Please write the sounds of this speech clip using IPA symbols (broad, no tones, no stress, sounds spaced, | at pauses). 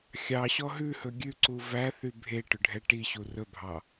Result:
xʲ ɑ ɕ ɔ ɦ ʉ h ɵ ɡʲ ʉ ǀ u v æ θ y bʱ e ʈ ɵ ɖʱ ɛ ʈ i ɕ u r ɵ bʱ ɑ